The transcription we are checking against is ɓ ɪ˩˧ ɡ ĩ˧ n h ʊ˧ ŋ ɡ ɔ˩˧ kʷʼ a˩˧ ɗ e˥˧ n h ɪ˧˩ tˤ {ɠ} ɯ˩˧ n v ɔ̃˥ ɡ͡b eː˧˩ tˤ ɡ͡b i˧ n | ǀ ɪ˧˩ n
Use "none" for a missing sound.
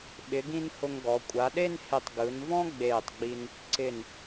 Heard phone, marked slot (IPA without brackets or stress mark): ɡ